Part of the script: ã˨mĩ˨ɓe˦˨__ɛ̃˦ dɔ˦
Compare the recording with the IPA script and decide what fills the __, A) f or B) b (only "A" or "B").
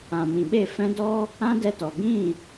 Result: A